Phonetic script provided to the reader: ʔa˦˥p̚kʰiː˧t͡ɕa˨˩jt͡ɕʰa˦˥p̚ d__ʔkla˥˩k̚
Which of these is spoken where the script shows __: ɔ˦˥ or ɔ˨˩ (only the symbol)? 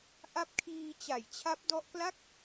ɔ˦˥